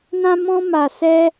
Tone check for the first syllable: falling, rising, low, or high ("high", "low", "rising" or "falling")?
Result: high